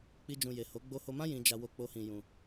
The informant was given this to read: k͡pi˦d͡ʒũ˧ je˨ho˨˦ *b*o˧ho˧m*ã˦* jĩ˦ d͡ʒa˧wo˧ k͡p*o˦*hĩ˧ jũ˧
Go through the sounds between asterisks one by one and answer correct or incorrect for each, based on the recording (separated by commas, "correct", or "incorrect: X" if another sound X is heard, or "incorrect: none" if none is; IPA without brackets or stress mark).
incorrect: ɡ͡b, correct, correct